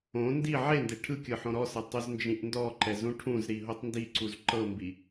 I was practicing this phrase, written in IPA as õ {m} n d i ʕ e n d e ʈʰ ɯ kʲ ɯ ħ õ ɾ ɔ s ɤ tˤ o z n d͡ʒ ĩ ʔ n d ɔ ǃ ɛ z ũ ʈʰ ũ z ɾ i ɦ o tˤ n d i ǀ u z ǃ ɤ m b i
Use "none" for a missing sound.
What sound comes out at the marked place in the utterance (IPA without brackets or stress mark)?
none